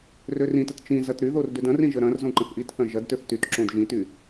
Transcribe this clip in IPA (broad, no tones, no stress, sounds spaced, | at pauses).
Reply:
r ø r ĩ t ə t t͡ʃ ĩ z ɐ t ɾ y ð o r d ø d ɐ̃ r ĩ ʒ ə ɾ ɐ̃ r z õ ǃ ə̃ θ ʔ i t θ ɐ̃ ʒ ɐ d t ø θ t y t ǁ õ d ʒ ĩ t y